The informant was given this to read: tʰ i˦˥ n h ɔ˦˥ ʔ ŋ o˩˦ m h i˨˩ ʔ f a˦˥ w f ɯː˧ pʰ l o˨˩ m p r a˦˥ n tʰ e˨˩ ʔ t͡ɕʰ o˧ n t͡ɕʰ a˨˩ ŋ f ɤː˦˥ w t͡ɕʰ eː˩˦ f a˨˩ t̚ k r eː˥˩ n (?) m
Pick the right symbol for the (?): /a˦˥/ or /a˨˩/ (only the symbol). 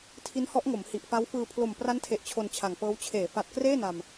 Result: a˨˩